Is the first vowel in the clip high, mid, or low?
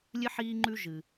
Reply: high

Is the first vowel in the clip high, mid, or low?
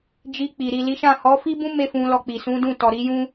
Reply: high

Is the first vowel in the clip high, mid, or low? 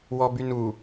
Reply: mid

